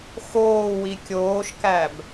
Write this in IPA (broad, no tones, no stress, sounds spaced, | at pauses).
x oː w i kʲ oː ʃ k æ b